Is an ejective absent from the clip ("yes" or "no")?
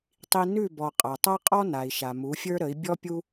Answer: no